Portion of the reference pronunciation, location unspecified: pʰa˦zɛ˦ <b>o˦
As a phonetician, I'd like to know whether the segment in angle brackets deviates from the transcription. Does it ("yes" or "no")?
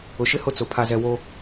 yes